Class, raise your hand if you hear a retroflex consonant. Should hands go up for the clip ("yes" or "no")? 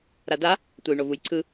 yes